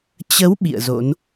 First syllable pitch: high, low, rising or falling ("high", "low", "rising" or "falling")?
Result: rising